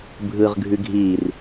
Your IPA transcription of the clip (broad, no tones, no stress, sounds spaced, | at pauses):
bʱ ɯː ʁ ɡʱ ʉ ɡʱ iː r